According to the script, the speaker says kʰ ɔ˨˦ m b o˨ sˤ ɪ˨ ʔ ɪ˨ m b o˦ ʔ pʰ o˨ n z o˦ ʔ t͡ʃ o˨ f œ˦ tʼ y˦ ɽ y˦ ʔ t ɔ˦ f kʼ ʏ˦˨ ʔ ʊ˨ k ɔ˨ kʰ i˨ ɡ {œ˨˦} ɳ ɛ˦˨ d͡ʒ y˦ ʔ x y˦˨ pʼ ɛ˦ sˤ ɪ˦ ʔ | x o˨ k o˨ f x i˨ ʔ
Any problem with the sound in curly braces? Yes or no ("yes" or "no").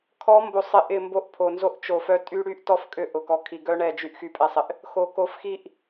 yes